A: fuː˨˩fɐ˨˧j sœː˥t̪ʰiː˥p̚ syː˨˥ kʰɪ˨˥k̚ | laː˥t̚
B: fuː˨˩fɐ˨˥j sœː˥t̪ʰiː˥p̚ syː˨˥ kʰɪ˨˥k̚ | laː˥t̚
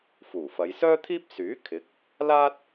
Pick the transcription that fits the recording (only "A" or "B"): A